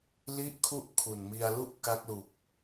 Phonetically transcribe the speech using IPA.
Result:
li˥˩ʔkʰu˥˩ʔ kʰu˨˩nmi˧a̯lu˥˩ʔ ka˦˥k̚lu˨˩k̚

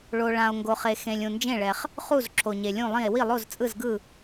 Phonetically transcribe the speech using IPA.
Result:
ɭo˨ ɭã˨o̯ŋɡo˨χe˨ xẽ˨lʲ ũ˨nd͡ʒẽ˥˨ɭɛ˨χ | χu˥˨z ǁʰo˨ɲe˨lʲũ˥˨lˠĩ˥˨e̯ wi˥˨lˠo˥˨zt͡sʼɯ˥˨zɡɯ˥˨

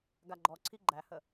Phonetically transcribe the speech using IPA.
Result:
ɡaɡ͡ǃɔǀʰi ɡ͡ǃæhə

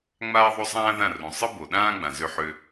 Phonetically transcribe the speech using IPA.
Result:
ŋ͡maː˦ðˤo˦sˤãː˦ðã˦˨ rũ˨ sˤɯ˦bo˨ɗãː˦ɡ͡bã˨ zø˦ħø˦

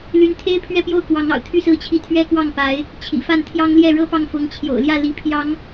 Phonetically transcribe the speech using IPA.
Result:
ly˧˥nt̪ʰe˥ɪ̯ pʰɥɛ˥˧pjo˥˩ʊ̯kwɑ˧˥ŋ ɑ̰˨˩ʊ̯t̪ʰy˥˧sɹ̩˥˧t͡ɕʰi˥˩ t̪ʰɥɛ˥kwɑ˥˩ŋ pa˧˥ɪ̯ | t͡ɕʰḭ˨˩fa˥˩nt̪ʰjɑ˥ŋ ljɛ˥˩ɻɤ˥pɑ˥˩ŋfʊ˧˥ŋ t͡ɕʰjo̰˨˩ʊ̯ljä˥˩ li˧˥ pʰjɑ˧˥ŋ

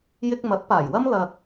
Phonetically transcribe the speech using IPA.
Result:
jɪ˧k̚ mɐ˨˥t̚paː˨˩jwɐ˥m lɐ˧k̚

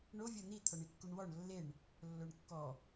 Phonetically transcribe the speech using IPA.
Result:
ɳo vʲon̪i t̪ʰɔɳikːuɳwɔɳ lːeɳ | lːoɳkːɔ

